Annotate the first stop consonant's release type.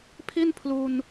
aspirated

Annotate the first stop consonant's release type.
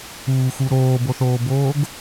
plain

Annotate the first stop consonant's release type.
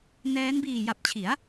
plain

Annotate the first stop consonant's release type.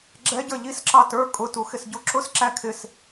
click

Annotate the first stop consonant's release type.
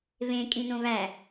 ejective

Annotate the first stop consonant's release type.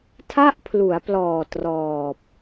aspirated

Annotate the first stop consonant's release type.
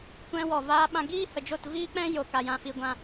plain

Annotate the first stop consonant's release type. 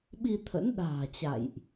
implosive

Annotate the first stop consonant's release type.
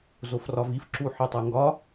click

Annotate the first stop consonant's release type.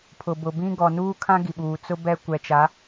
aspirated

